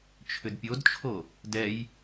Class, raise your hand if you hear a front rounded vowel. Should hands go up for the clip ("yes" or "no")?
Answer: yes